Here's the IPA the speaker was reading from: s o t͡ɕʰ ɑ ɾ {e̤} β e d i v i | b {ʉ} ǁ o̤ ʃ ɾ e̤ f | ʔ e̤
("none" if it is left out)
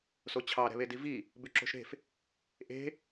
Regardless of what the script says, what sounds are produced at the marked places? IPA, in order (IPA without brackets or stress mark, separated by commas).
ɛ̤, ʉ